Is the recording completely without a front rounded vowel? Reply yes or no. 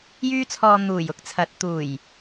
no